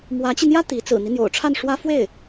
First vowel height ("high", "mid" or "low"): low